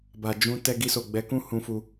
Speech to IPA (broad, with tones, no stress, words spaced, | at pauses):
ba˨d͡ʒũ˧ tɛ˧ɡi˧so˨ ɡ͡bɛ˨˦kũ˦ hũ˧fu˧